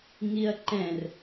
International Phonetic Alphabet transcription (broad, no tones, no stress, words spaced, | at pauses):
ŋiɐ̯ǃɛ̃r